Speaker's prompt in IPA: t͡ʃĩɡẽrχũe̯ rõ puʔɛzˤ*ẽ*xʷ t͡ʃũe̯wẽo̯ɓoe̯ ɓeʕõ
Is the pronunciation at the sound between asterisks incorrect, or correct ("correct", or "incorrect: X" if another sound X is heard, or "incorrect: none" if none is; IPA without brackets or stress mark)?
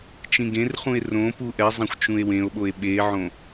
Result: incorrect: ɛ̃